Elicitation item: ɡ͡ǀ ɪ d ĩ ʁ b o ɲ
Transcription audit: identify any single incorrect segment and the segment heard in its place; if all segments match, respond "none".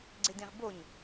none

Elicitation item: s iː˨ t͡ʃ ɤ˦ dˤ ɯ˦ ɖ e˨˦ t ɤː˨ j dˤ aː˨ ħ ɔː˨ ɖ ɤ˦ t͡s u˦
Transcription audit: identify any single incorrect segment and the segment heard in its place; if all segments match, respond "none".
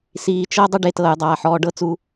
none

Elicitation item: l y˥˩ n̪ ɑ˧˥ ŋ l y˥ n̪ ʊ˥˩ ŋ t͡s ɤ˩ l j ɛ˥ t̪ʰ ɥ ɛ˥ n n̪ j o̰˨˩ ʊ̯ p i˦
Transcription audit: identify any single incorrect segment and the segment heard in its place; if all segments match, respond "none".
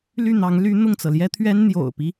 none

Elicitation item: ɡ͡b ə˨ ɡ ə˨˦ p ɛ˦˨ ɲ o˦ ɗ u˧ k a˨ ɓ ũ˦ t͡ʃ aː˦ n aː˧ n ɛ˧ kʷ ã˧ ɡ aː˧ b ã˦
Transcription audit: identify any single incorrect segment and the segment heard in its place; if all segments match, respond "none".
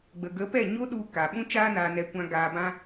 none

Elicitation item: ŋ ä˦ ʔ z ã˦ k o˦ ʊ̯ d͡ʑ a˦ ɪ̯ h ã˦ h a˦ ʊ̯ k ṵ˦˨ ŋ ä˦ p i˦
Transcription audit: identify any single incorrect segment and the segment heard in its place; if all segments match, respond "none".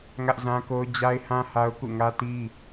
p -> t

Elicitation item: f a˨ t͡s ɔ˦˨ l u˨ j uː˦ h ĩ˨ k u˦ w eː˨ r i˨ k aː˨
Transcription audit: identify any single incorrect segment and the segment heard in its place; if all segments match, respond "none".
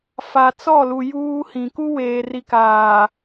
none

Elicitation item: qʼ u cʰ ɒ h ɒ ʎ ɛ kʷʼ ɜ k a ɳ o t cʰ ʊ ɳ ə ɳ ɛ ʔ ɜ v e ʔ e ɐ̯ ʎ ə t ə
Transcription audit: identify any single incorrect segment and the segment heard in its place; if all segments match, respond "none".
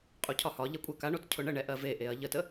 none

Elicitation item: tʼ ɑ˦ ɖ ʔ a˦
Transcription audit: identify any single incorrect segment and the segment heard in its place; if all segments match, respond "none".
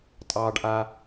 none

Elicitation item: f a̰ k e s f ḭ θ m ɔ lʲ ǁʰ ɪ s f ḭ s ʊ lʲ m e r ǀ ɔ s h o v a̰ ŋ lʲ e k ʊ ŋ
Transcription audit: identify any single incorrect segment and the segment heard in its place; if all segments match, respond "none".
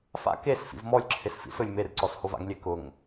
θ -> v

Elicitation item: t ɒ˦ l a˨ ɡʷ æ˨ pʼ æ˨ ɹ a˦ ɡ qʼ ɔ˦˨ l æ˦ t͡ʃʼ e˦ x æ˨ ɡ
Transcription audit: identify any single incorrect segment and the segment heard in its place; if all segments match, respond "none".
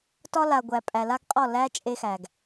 ɹ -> l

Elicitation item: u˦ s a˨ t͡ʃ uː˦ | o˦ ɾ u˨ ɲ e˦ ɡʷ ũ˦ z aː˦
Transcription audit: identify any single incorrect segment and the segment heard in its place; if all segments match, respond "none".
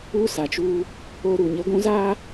none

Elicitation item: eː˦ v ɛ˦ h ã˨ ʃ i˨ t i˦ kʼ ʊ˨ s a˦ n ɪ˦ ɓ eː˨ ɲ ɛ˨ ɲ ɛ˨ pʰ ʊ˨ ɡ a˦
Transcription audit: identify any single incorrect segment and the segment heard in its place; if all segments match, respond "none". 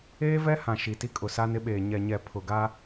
none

